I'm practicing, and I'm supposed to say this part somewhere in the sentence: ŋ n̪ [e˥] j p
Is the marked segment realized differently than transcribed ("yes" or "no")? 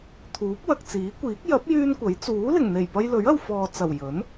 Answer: yes